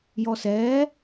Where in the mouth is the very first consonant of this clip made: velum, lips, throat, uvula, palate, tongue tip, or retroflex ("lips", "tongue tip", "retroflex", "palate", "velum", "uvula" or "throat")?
palate